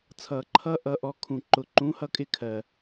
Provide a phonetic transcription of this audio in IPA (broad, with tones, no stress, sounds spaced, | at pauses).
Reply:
t͡sʰ ʌː˨ ǃʰ ʌ˦ ʔ ʌː˧ ʔ ɔ˧ kʰ ũ˨ ǃ ʊ˨ ǃ ũ˨˦ h ʌ˧ kʼ ɪ˧ kʰ ɜ˨